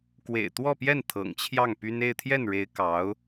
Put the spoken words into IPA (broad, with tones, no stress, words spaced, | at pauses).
kwḛ˨˩ɪ̯t̪wɔ˥˧pjɛ˥˩n t̪ʰɤ̰˨˩ŋt͡ɕʰjɑ˥˩ŋpy˥n e˥˧ɪ̯t̪ʰjɛ˥˩nɻe˧˥ɪ̯ kɑ˧˥ʊ̯